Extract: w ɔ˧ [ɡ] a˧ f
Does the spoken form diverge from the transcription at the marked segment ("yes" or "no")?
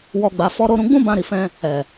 yes